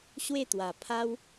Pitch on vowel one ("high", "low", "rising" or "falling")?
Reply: falling